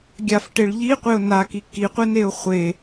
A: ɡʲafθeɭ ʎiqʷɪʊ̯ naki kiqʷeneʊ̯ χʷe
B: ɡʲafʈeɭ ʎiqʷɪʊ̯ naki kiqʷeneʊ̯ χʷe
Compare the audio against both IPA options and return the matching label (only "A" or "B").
B